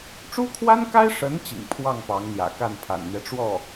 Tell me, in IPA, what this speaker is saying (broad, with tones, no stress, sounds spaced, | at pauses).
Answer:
ʈ͡ʂ u˥ kʰ w a˥ n k a˥ ɪ̯ ʂ ə˧˥ n t͡ɕ ḭ˨˩ ŋ pʰ w ɑ˥˩ ŋ p ɑ˧˥ ŋ n̪ j ä̰˨˩ k a˥˩ n pʰ a̰˨˩ n n̪ ɥ ɛ˦ ʈ͡ʂ w ɔ˥˩